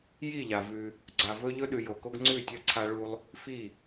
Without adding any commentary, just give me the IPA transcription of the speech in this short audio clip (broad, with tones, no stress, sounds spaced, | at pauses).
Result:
j i˦˨ ʎ a˨ v ʉ˧ | ɡ͡ǀ a˨ v ɵ˦ ʎ ɵ˦ ɗ ʉ˨ j o˨ k o˦ ɡ ŋ͡ǀ ʉ˦˨ tʲ ɐ˦ ǀʰ a˦ ɭ u˦ lˠ | f i˦˨